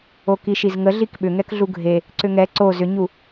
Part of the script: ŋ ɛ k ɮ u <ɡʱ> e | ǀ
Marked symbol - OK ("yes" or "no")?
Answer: yes